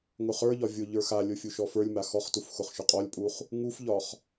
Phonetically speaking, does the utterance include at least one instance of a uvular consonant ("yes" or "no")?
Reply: yes